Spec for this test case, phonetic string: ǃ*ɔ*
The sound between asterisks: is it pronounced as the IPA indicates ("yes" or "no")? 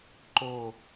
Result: no